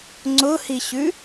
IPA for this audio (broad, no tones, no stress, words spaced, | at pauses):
ŋ͡ǀʊhiɕʉ